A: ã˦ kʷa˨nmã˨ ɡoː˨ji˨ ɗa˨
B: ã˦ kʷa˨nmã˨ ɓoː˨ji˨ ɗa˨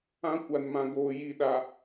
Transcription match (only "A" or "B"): A